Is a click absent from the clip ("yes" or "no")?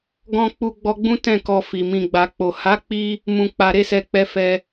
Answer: yes